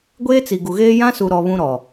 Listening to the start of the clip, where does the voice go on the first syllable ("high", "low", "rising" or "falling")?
high